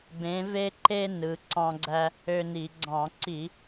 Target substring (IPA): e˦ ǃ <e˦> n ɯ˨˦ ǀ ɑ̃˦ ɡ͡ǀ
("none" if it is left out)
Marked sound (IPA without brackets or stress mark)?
e˦